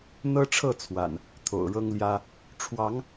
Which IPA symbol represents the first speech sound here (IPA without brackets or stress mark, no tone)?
n̪